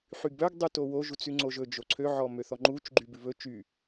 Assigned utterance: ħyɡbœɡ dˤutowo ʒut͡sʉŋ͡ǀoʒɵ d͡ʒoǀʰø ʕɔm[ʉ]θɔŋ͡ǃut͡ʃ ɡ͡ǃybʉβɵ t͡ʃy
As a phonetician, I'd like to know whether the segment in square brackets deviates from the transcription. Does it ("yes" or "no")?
yes